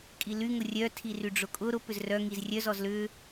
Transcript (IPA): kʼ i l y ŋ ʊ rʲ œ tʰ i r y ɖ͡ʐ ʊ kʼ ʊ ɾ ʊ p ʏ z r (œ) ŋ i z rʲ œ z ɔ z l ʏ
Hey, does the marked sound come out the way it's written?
yes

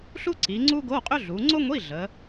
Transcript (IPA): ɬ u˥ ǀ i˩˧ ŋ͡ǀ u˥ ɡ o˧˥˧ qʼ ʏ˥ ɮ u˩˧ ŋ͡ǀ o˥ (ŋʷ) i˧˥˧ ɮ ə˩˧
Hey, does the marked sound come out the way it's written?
yes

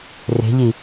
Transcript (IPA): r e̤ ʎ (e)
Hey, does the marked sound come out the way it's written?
no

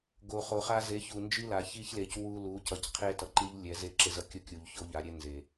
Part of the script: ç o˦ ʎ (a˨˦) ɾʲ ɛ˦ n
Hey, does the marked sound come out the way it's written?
yes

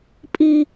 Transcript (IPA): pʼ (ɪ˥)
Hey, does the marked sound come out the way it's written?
no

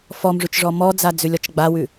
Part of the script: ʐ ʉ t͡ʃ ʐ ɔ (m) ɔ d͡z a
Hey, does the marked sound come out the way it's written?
yes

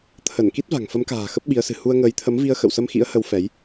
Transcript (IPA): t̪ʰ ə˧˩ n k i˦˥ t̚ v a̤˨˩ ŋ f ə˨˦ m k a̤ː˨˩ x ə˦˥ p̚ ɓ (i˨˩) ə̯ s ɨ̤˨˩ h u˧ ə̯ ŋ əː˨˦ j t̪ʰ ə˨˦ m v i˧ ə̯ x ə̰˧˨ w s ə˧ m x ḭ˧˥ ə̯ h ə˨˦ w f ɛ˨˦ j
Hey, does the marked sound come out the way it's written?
no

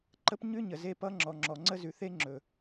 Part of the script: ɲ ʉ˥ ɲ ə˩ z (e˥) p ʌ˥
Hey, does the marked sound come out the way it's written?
yes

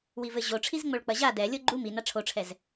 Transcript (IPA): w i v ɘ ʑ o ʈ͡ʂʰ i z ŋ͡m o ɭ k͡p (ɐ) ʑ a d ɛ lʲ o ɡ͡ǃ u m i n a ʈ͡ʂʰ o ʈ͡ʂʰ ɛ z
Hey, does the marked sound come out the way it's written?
yes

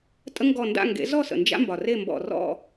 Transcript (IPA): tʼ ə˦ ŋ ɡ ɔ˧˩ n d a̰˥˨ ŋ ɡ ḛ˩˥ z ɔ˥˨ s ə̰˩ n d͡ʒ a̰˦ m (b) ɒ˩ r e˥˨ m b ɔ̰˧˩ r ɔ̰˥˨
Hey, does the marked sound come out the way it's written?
yes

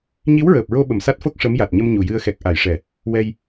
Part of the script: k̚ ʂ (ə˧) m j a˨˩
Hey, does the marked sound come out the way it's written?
no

